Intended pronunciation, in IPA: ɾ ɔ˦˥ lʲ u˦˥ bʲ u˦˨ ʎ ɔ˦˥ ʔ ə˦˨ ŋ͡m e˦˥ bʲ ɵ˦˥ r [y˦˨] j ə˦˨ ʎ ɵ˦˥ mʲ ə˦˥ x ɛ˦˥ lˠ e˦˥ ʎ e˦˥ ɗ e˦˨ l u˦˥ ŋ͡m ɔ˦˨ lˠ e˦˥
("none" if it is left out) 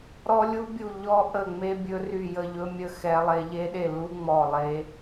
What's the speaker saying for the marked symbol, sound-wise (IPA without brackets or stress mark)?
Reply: y˦˨